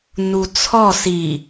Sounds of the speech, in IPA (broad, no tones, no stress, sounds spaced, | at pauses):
n u t͡sʰ ɔ s i